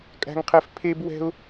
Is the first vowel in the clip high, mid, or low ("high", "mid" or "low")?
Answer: low